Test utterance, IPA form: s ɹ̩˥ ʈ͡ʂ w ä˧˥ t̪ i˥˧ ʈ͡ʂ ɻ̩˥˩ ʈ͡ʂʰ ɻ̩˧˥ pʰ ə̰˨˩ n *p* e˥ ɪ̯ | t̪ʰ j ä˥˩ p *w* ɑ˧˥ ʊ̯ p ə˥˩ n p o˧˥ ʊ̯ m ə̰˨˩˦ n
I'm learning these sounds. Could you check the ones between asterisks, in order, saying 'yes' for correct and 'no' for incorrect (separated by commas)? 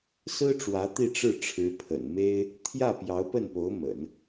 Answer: no, no